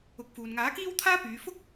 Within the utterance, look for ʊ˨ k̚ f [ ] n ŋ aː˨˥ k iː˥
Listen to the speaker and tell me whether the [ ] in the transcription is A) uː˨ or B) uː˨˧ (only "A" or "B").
A